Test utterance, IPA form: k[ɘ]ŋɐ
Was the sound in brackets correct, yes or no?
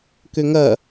no